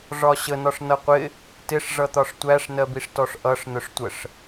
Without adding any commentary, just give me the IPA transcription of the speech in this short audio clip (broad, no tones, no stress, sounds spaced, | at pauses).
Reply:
ʐ ɒ ɕ ə n ɒ ʂ n ʌ qʷ ɪ | t ɪ ʂ ʐ ʌ t̪ ɒ ʂ tʷ æ ʂ n ɜ b i ʂ t ɔ ʂ ʔ ʌ ʂ n ʊ ʂ tʷ ə ʂ